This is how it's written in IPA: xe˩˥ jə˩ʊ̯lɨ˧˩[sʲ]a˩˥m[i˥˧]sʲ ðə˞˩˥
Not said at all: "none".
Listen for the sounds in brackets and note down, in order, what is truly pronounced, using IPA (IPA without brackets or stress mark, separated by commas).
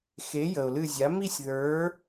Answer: zʲ, i˥˧